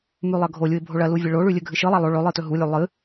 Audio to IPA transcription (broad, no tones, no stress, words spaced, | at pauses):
mʉlˠɐɡʱolʲuɪ̯ bʱoɭɐlu vʲɐɭoɭʉ lʲɵɡʱɨʃɨlˠa lˠo ɭɵ lˠɨtɵɦulʲʉ lˠɨ